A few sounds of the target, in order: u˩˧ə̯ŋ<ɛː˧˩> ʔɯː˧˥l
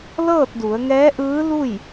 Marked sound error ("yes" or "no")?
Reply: yes